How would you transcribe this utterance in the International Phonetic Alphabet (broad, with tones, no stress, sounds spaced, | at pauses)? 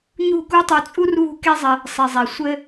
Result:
ɲ ṳ˥˩ k u˥ tˤ u˧ t͡sʼ u˥ r β ṳ˥ k e˥ zˤ ɘ˧ | sˤ i˩ zˤ e˩ sʷ ɘ˥